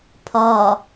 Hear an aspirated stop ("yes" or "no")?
yes